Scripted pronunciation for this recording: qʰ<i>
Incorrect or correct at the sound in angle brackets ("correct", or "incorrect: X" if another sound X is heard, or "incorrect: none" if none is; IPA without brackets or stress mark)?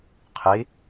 correct